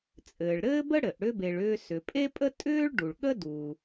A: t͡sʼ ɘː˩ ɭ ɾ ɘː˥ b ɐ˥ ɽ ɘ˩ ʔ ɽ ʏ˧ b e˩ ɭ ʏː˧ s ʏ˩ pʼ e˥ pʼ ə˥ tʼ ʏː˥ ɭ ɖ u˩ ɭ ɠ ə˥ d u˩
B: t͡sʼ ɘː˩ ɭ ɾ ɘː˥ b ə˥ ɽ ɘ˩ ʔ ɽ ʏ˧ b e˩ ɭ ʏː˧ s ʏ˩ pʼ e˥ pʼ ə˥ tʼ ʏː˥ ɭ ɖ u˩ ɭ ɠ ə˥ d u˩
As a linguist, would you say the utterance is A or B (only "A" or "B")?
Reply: B